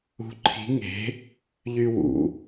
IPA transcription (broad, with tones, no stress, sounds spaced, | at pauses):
ṳ˧˥ ǃʰ i̤˧˥ ŋ e̤˧˥ | ʎ y˥ w ṵ˩˧